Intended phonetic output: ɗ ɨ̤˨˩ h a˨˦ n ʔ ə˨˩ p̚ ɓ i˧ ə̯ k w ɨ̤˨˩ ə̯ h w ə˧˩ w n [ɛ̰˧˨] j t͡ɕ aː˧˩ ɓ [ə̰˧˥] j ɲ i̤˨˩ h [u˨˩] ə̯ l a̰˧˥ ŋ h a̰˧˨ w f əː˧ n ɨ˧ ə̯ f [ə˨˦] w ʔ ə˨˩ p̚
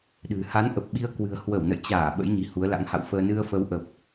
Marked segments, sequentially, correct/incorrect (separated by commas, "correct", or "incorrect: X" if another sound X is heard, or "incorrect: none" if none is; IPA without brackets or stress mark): incorrect: ə̰˧˨, correct, incorrect: u˨˦, correct